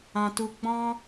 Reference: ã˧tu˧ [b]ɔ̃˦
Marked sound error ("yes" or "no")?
yes